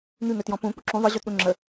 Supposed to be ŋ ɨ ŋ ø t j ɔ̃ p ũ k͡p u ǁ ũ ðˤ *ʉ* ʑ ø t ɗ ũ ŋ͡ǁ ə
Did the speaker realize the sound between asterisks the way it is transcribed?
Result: no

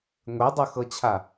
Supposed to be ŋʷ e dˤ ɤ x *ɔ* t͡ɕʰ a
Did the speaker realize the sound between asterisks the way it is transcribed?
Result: no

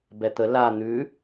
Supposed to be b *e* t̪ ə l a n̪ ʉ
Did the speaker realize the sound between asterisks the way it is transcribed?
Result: no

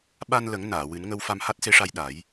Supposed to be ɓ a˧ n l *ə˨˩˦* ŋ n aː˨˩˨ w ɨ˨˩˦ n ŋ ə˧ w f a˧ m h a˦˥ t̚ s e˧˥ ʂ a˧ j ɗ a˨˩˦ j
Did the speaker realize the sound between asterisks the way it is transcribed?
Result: yes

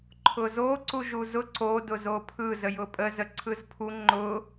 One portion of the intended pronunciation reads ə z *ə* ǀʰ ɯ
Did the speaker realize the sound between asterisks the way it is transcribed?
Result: yes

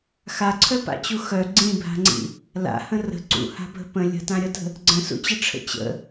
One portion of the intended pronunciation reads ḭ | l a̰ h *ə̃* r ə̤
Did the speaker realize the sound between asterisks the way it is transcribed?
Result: yes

